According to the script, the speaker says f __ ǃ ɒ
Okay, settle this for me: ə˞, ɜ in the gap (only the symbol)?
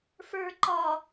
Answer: ə˞